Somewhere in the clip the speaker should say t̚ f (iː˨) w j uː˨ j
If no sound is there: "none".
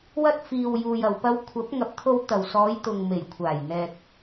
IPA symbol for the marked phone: iː˨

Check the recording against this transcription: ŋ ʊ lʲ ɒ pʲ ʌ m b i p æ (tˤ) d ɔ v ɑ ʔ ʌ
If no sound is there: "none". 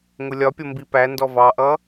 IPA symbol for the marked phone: n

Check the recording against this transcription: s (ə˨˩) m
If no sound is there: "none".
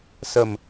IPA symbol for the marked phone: ə˨˩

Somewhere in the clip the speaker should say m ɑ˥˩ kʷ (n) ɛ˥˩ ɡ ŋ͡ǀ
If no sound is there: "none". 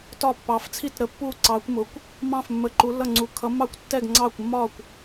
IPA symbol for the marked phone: tː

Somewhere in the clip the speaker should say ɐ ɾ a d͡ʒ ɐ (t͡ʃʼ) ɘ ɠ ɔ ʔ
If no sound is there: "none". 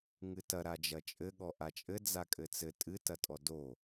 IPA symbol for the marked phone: t͡ʃʼ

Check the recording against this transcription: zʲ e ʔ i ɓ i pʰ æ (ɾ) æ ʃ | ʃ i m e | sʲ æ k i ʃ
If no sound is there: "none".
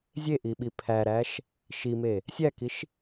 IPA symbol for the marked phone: ɾ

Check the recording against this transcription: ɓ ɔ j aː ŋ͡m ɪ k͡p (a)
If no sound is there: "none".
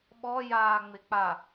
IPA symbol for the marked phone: a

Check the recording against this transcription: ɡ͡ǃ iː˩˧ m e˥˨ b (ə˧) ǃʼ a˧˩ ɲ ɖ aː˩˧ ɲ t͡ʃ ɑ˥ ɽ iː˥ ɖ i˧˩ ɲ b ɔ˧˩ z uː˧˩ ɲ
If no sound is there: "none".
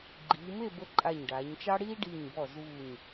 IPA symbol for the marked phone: ə˧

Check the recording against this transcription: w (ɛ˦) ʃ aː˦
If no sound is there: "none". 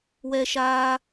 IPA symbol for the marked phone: ɛ˦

